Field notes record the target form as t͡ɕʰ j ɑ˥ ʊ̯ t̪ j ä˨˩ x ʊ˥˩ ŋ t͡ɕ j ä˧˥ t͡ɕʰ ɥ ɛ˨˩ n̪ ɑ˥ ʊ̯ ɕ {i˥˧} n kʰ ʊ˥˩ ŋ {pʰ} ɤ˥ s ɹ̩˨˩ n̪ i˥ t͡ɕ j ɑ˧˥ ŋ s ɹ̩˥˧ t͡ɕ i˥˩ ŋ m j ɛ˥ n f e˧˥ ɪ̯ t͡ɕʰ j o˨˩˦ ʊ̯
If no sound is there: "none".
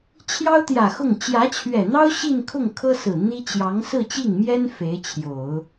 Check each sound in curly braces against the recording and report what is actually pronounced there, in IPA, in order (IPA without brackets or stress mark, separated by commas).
i˥˧, kʰ